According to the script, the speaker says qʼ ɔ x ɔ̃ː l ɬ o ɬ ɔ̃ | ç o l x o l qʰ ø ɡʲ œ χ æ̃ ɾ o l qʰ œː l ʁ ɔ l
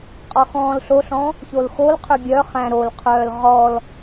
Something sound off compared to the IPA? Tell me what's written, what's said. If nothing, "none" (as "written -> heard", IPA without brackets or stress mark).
none